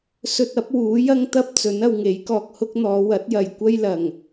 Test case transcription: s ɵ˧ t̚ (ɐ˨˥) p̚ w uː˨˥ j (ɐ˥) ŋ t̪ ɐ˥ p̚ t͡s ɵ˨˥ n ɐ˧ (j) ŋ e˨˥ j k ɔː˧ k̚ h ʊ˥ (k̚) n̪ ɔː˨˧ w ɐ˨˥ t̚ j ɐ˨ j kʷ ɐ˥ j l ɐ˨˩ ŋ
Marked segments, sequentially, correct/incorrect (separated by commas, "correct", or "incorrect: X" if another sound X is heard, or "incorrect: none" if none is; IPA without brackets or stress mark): correct, correct, incorrect: w, correct